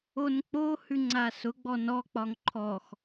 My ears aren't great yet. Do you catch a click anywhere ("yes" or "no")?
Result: yes